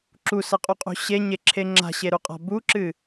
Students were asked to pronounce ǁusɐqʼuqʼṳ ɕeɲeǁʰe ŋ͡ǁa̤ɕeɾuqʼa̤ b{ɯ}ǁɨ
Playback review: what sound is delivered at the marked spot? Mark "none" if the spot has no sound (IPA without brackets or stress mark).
u